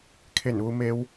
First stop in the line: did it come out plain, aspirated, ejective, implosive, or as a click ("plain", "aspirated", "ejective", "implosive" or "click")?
aspirated